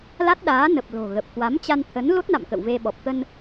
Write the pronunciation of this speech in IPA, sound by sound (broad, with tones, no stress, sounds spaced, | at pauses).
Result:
l a˦˥ t̚ ɗ aː˨˦ n ə˨˩ p̚ l o̤˨˩ ɣ ə˨˩ p̚ k w a˨˦ m t͡ɕ a˧ n t̪ʰ ə˨˦ n l o˦˥ t̚ n a̰˧˨ m k ə̰˧˨ w v e˧ ɓ ɔ˨˩ p̚ t̪ ə˧ n